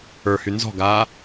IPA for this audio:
ə˞ h y n z ɔ̤ ɡ aː

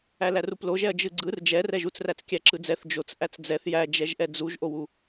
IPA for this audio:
æ l æ r u p l o ʒ ɛ ɐ̯ d͡ʒ ɯ ɡ͡ǀ ɯ r d͡ʒ ɛ r ɛ ʒ u t͡s r æ t͡s kʲ æ ǁ ɯ d͡z ɛ θ d͡ʒ o t͡s ʔ æ t͡s d͡z ɛ θ j æ d͡ʒ ɛ ʒ ʔ ɛ d͡z u ʒ ʔ o w u

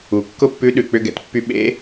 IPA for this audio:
u˩ kː ʊ˥ pː ʉ˧˥ ɗ ʉ˩ k͡p ʏ˥ ɡ ɛ̰˩˧ t pː y˥ ɓ ḛ˧˥

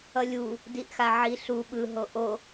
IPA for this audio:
ʌ lʲ u | d i ʔ x a ʕ i ɬ u ɓ ɯ ɦ o ʔ o

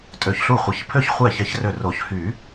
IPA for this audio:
tʼ ø˧˩ ç ɬ u˥˩ χʷ ɪ˧˩ ç pʰ ø˥˩ ç χʷ ɛ˥˩ ç ɛ˧˥ ç r ø˧˩ r o˨˩˦ ç h y˨˩˦

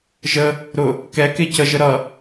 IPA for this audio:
ʒ ə | ɾ ʊ | k ɛ k e c ə ʒ ə ɾ ʌ

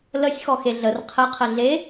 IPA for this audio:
l ə sʲ x ɔ x e ɮ ə r qʰ ə qʰ ə ɮ e

